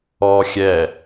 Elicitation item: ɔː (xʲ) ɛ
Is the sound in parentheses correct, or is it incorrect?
correct